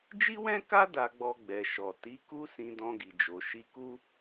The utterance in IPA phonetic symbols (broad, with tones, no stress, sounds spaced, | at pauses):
d͡ʒ i˦ w ɛ̃˦ k a˦ d a˧ ɡ͡b ɔ˧ ɡ͡b ɛ˨ ʃ ɔ˨ t i˨˦ k u˦ s ĩ˧ d ɔ̃˧ ɡ i˨ d͡ʒ o˨ ʃ i˧ k u˦